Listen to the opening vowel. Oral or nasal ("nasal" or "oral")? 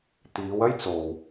oral